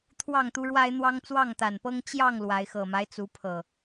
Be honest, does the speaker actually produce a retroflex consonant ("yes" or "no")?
yes